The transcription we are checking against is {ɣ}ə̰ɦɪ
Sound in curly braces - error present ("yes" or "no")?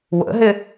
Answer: yes